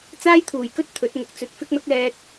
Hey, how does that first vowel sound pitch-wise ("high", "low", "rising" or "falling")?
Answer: high